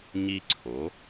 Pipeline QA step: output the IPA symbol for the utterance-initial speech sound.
ɲ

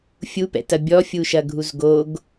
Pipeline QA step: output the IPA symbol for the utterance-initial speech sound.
fʲ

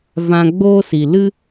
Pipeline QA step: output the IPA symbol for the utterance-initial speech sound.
v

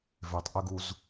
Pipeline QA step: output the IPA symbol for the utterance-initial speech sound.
v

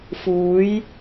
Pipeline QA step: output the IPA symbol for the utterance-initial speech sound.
f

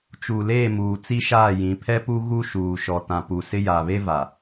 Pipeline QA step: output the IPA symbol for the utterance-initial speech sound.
t͡ʃ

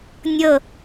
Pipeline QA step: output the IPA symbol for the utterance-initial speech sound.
nʲ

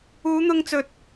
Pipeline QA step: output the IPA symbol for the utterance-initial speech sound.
uː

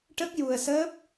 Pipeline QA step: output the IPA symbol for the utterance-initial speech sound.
ʈ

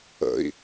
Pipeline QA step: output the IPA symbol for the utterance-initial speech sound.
ə̰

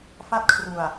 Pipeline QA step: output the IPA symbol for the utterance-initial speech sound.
f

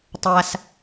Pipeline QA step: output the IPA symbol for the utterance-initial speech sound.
tˤ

